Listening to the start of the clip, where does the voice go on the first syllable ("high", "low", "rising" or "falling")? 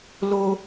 high